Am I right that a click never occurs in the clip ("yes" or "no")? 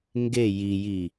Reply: yes